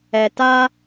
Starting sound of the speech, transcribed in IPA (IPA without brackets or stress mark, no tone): ɛ